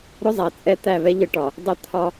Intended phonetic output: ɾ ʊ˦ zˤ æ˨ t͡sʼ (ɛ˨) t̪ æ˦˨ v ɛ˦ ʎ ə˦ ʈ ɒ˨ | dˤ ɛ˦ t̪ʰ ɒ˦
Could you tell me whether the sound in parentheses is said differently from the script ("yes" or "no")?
yes